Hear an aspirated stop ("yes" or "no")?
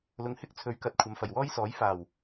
yes